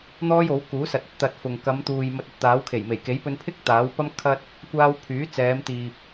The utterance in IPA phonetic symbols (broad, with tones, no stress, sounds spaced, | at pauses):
n̪ ɔː˥ j o˨˥ w k uː˨˥ s ɐ˨ t̚ ɵ˨ t̚ t̪ ɐ˧ t̚ f ʊ˨ ŋ k ɐ˨˧ m t̪ uː˨ j m ɐ˧ t̚ ɵ˨ t̚ t̪ aː˨˥ w kʰ e˨˩ j m e˨˩ j k e˨˥ j p ɵ˧ n pʰ ɪ˥ k̚ t̪ aː˨˥ w p ɐ˥ m kʰ ɐ˥ t̚ | kʷ aː˧ w pʰ yː˨˥ t͡s ɛː˨˧ m t̪ iː˨ p̚